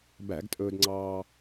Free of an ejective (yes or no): no